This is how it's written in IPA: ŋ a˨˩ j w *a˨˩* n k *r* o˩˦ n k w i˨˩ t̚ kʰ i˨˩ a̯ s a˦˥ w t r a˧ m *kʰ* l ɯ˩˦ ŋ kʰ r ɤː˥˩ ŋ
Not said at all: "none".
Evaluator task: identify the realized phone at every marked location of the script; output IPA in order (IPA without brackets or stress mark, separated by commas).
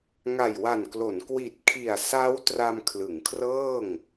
a˨˩, l, kʰ